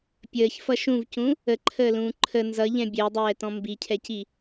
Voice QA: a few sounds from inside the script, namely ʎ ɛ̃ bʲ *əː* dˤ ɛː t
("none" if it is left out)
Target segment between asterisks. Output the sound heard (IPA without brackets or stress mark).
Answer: əː